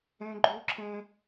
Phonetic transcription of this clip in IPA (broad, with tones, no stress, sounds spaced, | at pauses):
ẽ˦ ɡ͡ǃ u˦ ǁʰ ẽ˦